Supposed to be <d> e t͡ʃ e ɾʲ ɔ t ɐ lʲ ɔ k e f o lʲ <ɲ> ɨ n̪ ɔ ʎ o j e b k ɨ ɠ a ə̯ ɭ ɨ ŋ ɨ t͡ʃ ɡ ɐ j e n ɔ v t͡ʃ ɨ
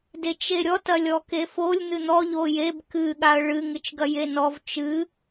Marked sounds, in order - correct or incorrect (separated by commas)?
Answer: correct, incorrect